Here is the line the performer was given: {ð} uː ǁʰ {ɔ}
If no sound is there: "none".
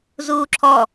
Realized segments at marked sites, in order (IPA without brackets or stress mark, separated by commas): z, ɔ